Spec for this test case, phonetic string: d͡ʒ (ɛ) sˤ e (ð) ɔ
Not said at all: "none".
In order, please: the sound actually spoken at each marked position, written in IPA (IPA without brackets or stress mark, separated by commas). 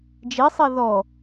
e, ð